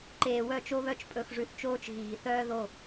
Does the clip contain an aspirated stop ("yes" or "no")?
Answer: no